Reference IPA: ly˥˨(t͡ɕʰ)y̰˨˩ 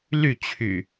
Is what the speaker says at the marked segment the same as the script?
yes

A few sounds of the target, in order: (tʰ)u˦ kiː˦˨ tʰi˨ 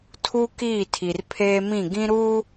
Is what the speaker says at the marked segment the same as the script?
yes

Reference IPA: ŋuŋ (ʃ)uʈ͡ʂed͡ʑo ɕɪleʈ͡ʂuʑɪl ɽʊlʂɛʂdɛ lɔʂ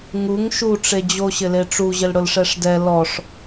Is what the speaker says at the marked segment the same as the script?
yes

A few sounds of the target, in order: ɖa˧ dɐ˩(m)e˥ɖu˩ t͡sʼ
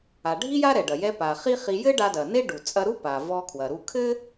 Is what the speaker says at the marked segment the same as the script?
no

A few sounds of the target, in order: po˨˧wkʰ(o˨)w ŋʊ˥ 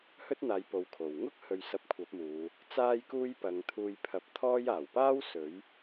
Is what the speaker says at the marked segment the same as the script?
no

